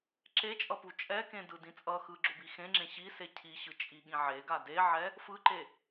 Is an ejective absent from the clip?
no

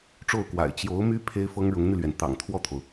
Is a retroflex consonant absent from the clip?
no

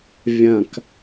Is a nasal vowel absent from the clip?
no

